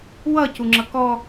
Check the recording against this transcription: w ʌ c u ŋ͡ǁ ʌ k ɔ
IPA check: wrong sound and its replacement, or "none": none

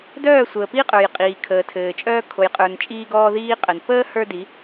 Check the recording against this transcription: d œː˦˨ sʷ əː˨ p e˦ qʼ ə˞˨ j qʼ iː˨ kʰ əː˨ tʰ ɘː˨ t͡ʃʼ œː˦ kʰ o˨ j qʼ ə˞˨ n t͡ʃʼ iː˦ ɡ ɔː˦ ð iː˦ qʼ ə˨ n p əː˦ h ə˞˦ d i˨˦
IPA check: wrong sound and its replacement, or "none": e˦ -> i˦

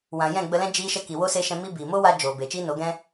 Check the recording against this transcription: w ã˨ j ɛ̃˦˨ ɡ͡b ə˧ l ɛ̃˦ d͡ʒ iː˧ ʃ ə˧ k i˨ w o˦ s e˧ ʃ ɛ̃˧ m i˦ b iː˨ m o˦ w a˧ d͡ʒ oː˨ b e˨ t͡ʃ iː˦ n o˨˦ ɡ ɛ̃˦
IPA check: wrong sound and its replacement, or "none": none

